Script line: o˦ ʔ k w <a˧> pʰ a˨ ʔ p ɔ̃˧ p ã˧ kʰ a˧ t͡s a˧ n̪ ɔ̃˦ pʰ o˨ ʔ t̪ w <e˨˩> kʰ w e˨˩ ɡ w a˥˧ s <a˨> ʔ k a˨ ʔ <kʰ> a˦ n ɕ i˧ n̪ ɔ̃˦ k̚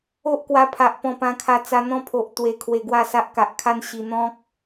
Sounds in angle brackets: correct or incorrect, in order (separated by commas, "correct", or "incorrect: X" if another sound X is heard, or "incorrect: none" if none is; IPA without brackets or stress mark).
correct, correct, incorrect: a˦, correct